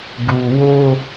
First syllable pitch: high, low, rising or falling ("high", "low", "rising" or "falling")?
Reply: low